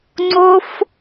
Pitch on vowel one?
high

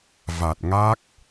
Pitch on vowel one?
low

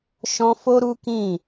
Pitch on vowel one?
high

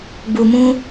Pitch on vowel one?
low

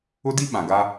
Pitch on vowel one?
high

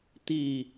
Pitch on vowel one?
falling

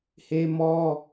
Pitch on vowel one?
high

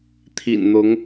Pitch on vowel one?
low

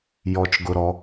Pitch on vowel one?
low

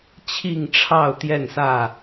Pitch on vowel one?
falling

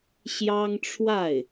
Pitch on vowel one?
high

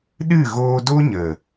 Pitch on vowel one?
falling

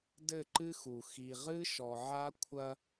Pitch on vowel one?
falling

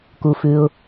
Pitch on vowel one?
low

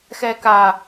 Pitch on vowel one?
high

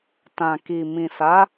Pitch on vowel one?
low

